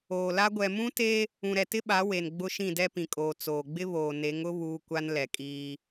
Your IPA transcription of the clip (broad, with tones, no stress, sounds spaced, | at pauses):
oː˨ l a˦ ɡʷ ɛ˨ m ũ˦ t e˦ | ũ˨ ɾ ɛ˨ t ɪ˦ ɓ a˨˦ w e˨ n ɡ͡b ʊ˦ ʃ ĩ˦˨ d ɛ˦ p ĩ˨ kʼ oː˨ t͡s oː˨ ɡ͡b ɪ˦ β oː˨ n e˨˦ ŋ ʊ˦ β uː˦ kʷ a˦ n l ɛ˨ kʼ iː˦